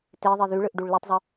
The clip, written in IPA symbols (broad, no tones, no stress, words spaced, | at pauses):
teðˤi ðyɭɯʔɖuɭ lutˤzˤø